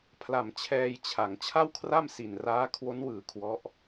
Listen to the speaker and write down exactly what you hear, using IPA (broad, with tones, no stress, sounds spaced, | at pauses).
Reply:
pʰ l a˨˩ m t͡ɕʰ ɛː˧ j t͡ɕʰ a˩˦ ŋ t͡ɕʰ a˥˩ w kʰ r a˥˩ m s i˨˩ n r aː˦˥ kʰ w o˦˥ n w ɯː˨˩ kʰ w ɔ˦˥ ʔ